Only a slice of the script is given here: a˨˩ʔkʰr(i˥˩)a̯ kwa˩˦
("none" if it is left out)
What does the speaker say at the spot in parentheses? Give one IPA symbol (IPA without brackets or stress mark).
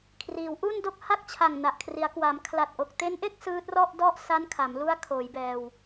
i˩˦